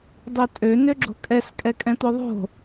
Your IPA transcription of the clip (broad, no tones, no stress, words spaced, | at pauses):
dˤøtʼø nøɡ͡ǁo̤kʼɛs kʼɛkʼɛ̃t̪oðˤo̤